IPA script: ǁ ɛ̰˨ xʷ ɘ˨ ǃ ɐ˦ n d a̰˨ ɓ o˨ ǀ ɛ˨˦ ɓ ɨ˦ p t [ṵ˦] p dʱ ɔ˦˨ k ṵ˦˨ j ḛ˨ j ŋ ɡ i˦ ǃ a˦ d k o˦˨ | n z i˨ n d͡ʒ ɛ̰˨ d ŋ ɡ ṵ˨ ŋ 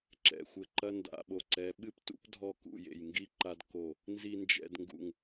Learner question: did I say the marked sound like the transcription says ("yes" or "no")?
yes